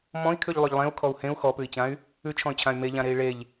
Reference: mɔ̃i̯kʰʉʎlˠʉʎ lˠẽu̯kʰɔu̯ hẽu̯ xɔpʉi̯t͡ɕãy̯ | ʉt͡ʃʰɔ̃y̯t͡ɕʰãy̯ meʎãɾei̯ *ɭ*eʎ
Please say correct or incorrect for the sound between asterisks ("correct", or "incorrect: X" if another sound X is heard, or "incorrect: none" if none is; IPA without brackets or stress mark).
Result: correct